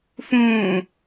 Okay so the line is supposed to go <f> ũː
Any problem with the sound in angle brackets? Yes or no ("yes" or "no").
no